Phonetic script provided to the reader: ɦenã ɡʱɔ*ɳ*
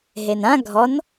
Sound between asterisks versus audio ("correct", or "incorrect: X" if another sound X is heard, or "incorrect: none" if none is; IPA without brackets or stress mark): incorrect: n